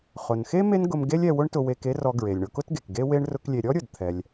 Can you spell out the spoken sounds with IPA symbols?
χʊ˩nxe˥ me˥nɡʊ˧m ɡe˥lʲɛ˧wʊ˥ɳtʊ˧ we˧ke˥rɔ˧ ɡɹe˩lʲɳʊ˧kʊ˥tɡe˩k ɡe˥we˥ɳ rʊ˥klʲe˧ ɾʲɔ˥ɾʲʊ˩d t̪ʰɛ˧lʲ

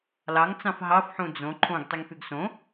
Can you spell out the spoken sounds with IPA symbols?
lɑŋt͡sɑ̃f ɦɑfħũ d͡zõ ǃʰõɡtˤiŋfyɡ sõ

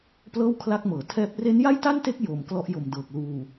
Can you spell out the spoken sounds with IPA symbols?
plɤː˥˩wkʰla˦˥k̚mɤː˩˦ tʰɛː˦˥p̚ re˦˥nja˥˩jta˥˩nte˦˥k̚ jo˨˩m klɔ˦˥ʔjo˨˩mdɤː˨˩k̚ luː˨˩

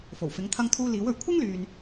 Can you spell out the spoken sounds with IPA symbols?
fo˨˩wfɪ˨˥ŋ t̪ʰɐ˧ŋt̪ʰuː˧ liː˨˥wɵ˨˩ɥ kʷʰɪ˥ŋ lyː˨n

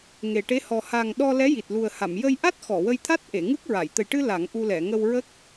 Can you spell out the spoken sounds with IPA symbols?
ŋe˨˩ʈe˧˥ hɔ˨˩ha˨˩ŋ ɗɔ˧ lɛ˧˥ji˨˩t̚lu˨˩ə̯ha˨˩˨m jə˧jʔa˦˥t̚ xɔ˨˩˨wə˧jt̪ʰa˦˥t̚ ʔe˨˩˨ŋɨ˦˥k̚ɹa˨˩˨j t̪ə˨˩jʈɨ˧ la˨˩˦ŋʔu˧lɛ˨˩˨ ŋə˧w ɹə˦˥k̚

